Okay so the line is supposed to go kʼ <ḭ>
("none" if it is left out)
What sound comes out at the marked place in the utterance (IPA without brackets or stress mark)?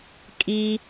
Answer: i